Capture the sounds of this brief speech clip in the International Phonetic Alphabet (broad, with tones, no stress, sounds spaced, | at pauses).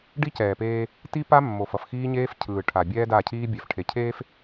ɖ i˦ c ɛː˨ p eː˦ | t i˦ p a˦ mː o˨ f ʌ˨ f x iː˦ ɲ eː˦ f cʰ ɯː˨ ʈʰ a˨ bʲ ɛː˦ d a˦˨ cʰ iː˦ bʲ ɛ˨ f ʈʰ e˨ cʰ eː˦ f